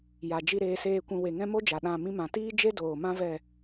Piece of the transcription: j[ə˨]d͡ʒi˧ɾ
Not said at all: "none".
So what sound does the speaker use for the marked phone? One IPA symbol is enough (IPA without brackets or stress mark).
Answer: a˨